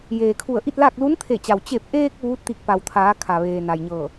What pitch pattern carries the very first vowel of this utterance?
low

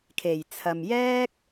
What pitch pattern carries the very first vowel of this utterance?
low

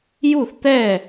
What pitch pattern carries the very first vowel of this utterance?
falling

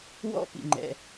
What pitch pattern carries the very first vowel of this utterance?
high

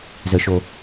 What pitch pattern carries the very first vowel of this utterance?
low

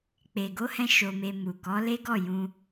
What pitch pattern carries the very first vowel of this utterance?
low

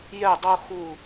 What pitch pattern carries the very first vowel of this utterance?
falling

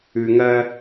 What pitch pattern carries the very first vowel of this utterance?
low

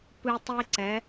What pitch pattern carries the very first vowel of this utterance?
high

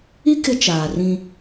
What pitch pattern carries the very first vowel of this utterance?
high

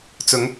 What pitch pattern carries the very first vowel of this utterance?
rising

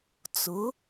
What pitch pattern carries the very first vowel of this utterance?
rising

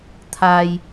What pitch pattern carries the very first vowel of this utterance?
low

